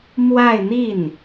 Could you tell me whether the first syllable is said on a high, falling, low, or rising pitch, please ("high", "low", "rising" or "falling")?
falling